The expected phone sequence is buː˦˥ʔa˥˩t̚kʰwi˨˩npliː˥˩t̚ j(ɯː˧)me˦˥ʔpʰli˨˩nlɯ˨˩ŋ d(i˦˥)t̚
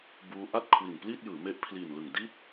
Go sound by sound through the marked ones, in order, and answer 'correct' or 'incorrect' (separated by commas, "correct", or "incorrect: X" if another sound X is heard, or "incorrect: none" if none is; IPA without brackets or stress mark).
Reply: incorrect: ɯː˩˦, incorrect: i˥˩